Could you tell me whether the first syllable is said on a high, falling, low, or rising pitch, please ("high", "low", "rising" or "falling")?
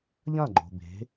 falling